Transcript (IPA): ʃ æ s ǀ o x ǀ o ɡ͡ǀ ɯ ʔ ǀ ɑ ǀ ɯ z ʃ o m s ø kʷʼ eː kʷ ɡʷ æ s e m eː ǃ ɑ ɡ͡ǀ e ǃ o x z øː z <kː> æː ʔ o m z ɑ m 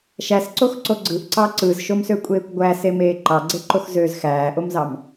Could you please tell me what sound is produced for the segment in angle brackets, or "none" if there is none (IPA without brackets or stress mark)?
x